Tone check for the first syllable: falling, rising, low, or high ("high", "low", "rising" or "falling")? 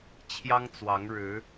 high